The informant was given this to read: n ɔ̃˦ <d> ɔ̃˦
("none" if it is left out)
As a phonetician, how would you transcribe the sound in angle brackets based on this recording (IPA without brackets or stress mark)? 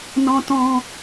t